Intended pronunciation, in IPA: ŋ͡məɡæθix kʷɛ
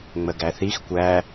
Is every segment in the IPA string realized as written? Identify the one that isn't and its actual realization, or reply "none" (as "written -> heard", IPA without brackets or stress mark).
ɛ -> æ